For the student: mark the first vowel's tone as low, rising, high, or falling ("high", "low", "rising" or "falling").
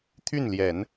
falling